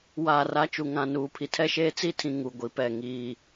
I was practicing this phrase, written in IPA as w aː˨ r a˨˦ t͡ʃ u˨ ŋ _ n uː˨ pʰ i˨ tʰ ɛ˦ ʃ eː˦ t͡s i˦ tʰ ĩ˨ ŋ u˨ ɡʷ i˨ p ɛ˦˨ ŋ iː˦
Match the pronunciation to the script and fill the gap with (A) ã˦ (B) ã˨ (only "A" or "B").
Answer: B